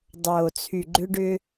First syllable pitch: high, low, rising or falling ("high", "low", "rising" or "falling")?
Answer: low